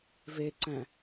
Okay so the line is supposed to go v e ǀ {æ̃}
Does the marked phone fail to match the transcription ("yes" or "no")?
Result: no